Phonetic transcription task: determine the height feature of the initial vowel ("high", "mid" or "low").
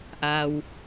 low